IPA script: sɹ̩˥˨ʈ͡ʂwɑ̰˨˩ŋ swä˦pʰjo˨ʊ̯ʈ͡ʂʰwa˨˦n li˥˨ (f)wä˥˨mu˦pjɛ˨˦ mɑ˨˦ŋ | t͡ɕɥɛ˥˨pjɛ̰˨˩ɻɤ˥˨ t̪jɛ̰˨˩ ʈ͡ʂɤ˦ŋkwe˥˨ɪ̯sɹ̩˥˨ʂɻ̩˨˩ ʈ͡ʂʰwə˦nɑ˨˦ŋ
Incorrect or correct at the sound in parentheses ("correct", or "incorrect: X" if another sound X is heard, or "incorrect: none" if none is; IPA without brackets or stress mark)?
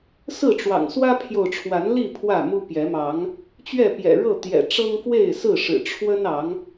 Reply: incorrect: pʰ